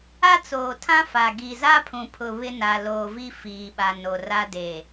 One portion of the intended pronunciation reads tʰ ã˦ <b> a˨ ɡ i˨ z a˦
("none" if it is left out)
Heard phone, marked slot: f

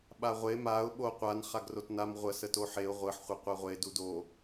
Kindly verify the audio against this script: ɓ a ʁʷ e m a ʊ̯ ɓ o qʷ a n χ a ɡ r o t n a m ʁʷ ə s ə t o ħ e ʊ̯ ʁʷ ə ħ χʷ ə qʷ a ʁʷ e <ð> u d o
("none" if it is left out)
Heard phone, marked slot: d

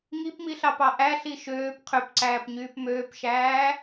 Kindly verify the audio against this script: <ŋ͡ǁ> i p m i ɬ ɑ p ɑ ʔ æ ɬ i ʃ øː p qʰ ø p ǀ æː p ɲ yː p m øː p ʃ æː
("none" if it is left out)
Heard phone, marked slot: ŋ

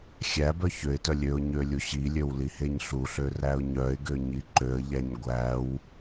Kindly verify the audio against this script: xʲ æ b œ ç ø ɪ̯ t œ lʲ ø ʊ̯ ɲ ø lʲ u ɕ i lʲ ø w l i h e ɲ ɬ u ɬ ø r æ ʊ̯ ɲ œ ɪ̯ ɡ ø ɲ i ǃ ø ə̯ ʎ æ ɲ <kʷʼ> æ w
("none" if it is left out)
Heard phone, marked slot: ɡʷ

